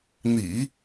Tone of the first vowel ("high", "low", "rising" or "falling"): low